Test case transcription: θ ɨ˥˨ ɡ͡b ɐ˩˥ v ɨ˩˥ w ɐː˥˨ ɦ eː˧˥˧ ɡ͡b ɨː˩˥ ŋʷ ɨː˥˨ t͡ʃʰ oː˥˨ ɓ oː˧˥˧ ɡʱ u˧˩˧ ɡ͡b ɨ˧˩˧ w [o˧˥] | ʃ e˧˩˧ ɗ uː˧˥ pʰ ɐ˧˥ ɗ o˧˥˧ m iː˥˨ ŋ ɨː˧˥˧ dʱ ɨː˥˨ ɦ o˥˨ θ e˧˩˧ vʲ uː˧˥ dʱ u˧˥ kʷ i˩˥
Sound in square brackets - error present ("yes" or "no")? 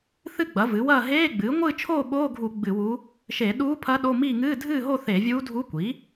yes